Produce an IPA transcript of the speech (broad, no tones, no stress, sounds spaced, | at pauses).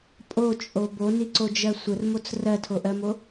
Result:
pʼ o t͡ʃʼ o b o n i ǀ o d͡ʒ ɜ sʷ ə r m o t͡s r ɜ tʰ o ʔ ɜ m o